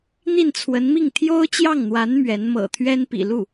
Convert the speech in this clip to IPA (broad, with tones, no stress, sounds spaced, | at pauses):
n̪ i˥˩ n t͡sʰ w ə˧˥ n m i˥˩ ŋ t̪ʰ j o˥ ʊ̯ t͡ɕ j ɑ˥˩ ŋ n̪ w a˧˥ n m ɥ ɛ˧˥ n m ɤ̰˨˩ t̪ʰ ɥ ɛ˥ n p ḭ˨˩ l u˥˩